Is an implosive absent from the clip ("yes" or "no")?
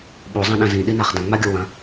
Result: no